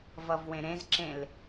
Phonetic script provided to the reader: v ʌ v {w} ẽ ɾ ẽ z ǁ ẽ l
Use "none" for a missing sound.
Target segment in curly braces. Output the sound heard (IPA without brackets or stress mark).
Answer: w